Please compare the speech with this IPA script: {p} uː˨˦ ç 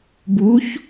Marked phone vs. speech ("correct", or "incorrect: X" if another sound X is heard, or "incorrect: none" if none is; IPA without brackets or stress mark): incorrect: b